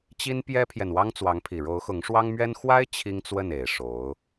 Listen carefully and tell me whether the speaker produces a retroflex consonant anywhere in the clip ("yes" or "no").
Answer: yes